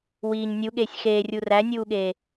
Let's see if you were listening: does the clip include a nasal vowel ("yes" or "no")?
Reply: no